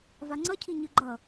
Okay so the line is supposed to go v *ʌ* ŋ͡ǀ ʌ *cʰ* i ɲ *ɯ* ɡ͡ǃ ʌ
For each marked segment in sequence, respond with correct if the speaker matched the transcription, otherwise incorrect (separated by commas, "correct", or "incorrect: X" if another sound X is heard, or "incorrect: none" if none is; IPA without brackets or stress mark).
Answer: incorrect: a, correct, correct